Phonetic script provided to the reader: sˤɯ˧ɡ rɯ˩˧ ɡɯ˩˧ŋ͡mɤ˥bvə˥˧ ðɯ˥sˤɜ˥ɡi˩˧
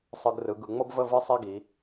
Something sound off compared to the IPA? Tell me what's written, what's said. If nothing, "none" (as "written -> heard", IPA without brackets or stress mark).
ð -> v